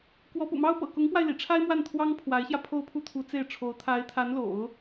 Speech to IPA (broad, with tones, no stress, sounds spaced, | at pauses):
k w ɔ˧˥ p ṵ˨˩ m ɑ˥ ʊ̯ p ɤ̰˨˩ k ʊ˧˥ ŋ p w a˧ ɪ̯ l ḭ˨˩ ʈ͡ʂʰ a˥ ɪ̯ m w a˥˩ n t̪ʰ w ɑ˥ ŋ pʰ w a˧˥ ɪ̯ ɕ j ä˧ pʰ o˥˧ ʊ̯ pʰ u˥˩ t̪ʰ u˧˥ t͡s e˥˩ ɪ̯ ʈ͡ʂʰ o˧˥ ʊ̯ t̪ʰ a˧˥ ɪ̯ t̪ʰ a˧˥ n l o̰˨˩˦ ʊ̯